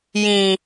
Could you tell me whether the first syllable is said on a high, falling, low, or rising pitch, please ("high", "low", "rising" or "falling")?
low